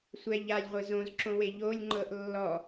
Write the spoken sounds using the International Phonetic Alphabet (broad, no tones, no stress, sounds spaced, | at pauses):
sʷ ɛ ʎ a lʲ ʁʷ ɯ z õ z ǁ õ w e ʎ o lʲ ŋ͡ǃ ɤ ʔ lː ɔ